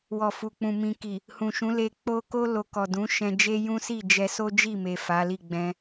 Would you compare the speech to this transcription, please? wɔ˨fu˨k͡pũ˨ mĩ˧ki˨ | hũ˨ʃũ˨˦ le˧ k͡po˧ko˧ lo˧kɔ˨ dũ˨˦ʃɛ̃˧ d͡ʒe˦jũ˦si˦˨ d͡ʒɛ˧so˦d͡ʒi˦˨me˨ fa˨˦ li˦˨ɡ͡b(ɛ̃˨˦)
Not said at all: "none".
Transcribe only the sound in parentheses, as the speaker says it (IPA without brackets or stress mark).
ɛ̃˧